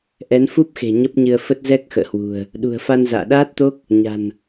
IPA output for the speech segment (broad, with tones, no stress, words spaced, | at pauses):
ʔɛ˨˦nfu˦˥p̚xe̤˨˩ ɲə˦˥p̚ɲɨ˧ə̯fə˦˥t̚ zɛ˦˥k̚ xə̰ː˧˨hwṳ˨˩ə̯ | ɗṳ˨˩ə̯fa˧n za̰ː˧˨ɗaː˦˥t̚t̪o˦˥k̚ | ɲa̤˨˩n